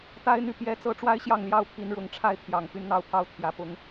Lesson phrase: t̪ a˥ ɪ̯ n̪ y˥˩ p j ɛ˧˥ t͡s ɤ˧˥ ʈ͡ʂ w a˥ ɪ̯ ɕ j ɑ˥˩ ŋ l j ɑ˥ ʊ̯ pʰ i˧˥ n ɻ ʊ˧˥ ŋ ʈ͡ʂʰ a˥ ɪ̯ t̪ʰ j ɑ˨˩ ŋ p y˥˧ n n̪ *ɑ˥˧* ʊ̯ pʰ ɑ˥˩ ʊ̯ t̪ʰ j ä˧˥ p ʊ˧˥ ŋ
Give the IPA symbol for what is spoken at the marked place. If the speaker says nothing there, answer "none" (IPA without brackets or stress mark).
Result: ɑ˥˧